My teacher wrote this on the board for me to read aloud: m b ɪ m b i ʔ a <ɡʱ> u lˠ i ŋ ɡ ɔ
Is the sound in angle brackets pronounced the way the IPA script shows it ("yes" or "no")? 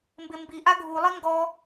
yes